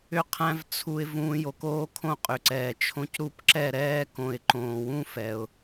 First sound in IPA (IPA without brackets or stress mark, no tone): ʏ